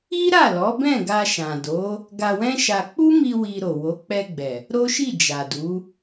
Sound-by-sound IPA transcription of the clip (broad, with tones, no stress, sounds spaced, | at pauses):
i˦ ɾ a˦˨ l ɔ˨˦ b ɛ̃˦˨ ɡ a˧ ʃ ã˨ d o˨˦ | ɡ a˧ w ɛ̃˦ ʃ a˧ k͡p u˦ m i˧ w i˧ ɾ o˨ w o˨˦ k͡p ɛ˧ ɡ͡b ɛ˨ | ɾ o˦ ʃ i˦˨ d͡ʒ a˨ d u˨˦